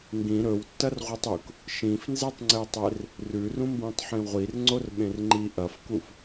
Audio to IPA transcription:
ŋ ɡ ĩ ɾ ɵ w tː ɐ r ʁʷ i tˤ u k | ʃ ĩ f n z e tˤ ŋ͡ǀ e tˤ e r | r ʉ r ũ m b ĩ tˤ ħ ĩ ʁʷ i r ŋ͡ǀ o r ɓ ẽ r ŋ͡ǃ i ʔ ɐ f k u f

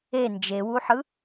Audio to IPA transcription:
e n d͡ʒ e w u ħ ɯ

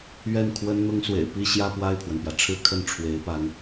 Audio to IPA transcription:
ɥ ɛ˥˩ n kʰ w ə˥ n n̪ ʊ˥ ŋ s w ḛ˨˩ ɪ̯ p i˥˧ ɕ j ä˥˧ p w a˥˩ ɪ̯ pʰ w ə˩ n p j ä˩ ʈ͡ʂʰ ɻ̩˥˧ kʰ ə˥˩ n ʈ͡ʂʰ w e˧˥ ɪ̯ p a˧˥ n

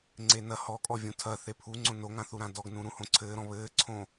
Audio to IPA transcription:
ŋ͡ǀ e n ɐ h ɔ kʼ ɔ vʲ ũ tʰ ɐ θ e pʰ u ŋ͡ǀ õ n o ŋ ã θ u ɾ ã d ɔ ɡ n ũ ɾ ũ h õ ǀʰ ɘː ɾ ɔ̃ β ɘː ǀʰ õ

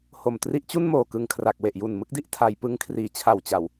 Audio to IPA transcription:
h o˨˩ m t r i˦˥ ʔ t͡ɕ u˥˩ n m oː˨˩ k ɯ˧ ŋ kʰ r a˨˩ k̚ w e˨˩ ʔ j u˨˩ n m ɯ˥˩ k̚ d i˦˥ ʔ tʰ a˧ j p ɯ˦˥ ŋ kʰ r iː˨˩ t͡ɕʰ a˨˩ w t͡ɕ a˨˩ w

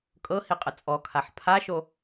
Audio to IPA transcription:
kʼ ɤ h i qʼ ə t͡sʼ ɔ kʰ a ħ pʰ a ʃ o

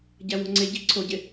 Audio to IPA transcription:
ɟ æ w o̤ ŋ͡ǀ e ɟ i̤ ǀʰ o ɟ e

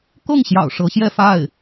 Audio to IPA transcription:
k ɤ˥˩ ŋ ɕ j ɑ̰˨˩ ʊ̯ ʂ ɤ˧˥ ɕ j ɛ˥˧ f a˥˩ ɪ̯

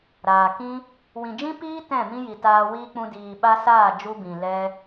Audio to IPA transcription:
ɾ aː˨ k ĩ˦ | w ĩ˨ d͡ʒ ĩ˦ p iː˦ t ɛ̃˦˨ m ĩ˦ j i˨ t aː˧ w iː˦ k͡p ũ˧ d iː˨ ɓ a˦ s aː˦˨ d͡ʒ u˦ b ĩ˨ l ɛ˦

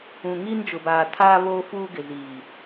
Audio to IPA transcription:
ũ˨ ŋ iː˦ n d͡ʒ ʊ˨ b aː˨ tʰ aː˦ β oː˦ f uː˦ ɡ ɪ˨ z iː˨

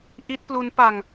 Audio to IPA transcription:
ʔ i˦˥ t̚ p l u˦˥ n p a˧ ŋ

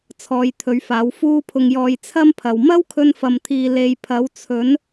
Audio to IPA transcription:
t͡sʰ ɔː˨˧ j t̪ʰ ɵ˨˧ ɥ f aː˨˥ w f uː˧ pʰ ʊ˨ ŋ j ɔː˨ j t͡sʰ ɐ˥ m pʰ ɐ˨ w m ɐ˥ w kʰ ɵ˧ n f ɐ˨ m t̪ʰ iː˨ l e˨˧ j pʰ ɐ˨˥ w t͡sʰ ɵ˨˥ n

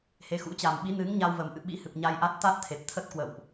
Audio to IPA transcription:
h e˨˦ x ṵ˧˥ t͡ɕ a˨˩ m ɓ i˨˦ n ɨ˨˦ ŋ ɲ a˧ w v ə˨˩ m ʔ ɨ̰˧˨ ɓ ḭ˧˥ h ɨ˨˩ p̚ ɲ a˧ j ʔ a˦˥ t̚ t̪ a˦˥ t̚ t̪ʰ e˨˩ p̚ t̪ʰ ə˦˥ t̚ k w ə̰˧˨ w ʔ

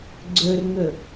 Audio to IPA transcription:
ɡ͡ǀ ɵ r ŋ ɵ

